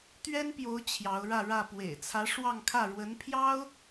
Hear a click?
no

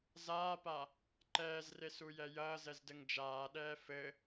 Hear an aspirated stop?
no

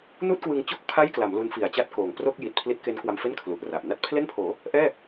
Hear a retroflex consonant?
no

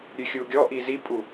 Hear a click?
no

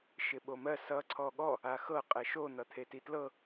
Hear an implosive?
yes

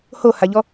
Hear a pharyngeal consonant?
no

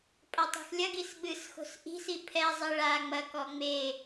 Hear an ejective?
yes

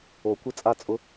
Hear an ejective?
yes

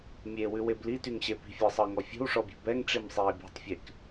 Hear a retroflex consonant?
yes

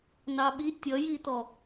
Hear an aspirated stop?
no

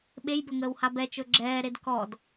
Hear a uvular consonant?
no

